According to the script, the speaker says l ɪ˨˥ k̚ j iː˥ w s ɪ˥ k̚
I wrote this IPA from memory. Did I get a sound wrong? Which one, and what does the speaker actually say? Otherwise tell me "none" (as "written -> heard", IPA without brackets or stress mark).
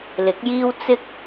s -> t͡s